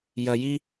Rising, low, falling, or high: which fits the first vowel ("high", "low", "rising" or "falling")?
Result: low